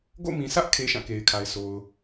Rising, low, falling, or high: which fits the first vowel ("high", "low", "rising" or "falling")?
falling